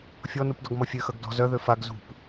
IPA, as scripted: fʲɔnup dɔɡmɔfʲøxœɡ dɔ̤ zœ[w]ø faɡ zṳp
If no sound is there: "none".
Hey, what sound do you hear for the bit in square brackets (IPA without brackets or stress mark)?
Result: ð